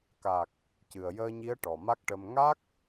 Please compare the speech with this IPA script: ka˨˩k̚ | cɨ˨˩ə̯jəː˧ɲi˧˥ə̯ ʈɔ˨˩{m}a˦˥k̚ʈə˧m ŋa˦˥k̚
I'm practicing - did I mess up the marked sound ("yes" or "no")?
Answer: no